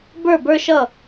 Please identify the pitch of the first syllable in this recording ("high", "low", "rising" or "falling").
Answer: falling